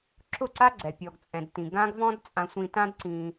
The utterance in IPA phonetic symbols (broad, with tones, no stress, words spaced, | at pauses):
ǁʊ˦˨ǀa˦ɡ͡ǀɛ˨ pʲɔ˨ɡt͡sʼɛ̃˨dtĩ˨ ɡã˦ɡvɔ̃˦dt͡sʼã˧sʷĩ˧ tã˦dǀĩ˧